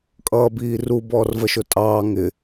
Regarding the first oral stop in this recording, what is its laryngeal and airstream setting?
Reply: ejective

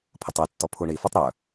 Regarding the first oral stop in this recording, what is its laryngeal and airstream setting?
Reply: aspirated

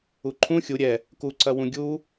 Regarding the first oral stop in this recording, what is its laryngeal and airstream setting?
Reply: click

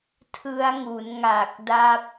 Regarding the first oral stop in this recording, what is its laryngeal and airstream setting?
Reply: aspirated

